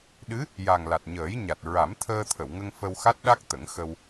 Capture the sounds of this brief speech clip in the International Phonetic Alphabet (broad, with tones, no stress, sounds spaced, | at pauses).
ɗ ɨ˧˥ | j a˨˩ ŋ l a˨˩ t̚ ɲ əː˨˩˦ j ɲ a˨˩ t̚ ɹ a˨˩˦ m t̪ʰ əː˧ t̪ʰ ə˨˩˨ w ŋ ə˧ ŋ f ə˧ w x a˦˥ t̚ ɗ a˦˥ k̚ t̪ ə˨˩˦ ŋ x ə˧ w